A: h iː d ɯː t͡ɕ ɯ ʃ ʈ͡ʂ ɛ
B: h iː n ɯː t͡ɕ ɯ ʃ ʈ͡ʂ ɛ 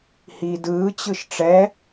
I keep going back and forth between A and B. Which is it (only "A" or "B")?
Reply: A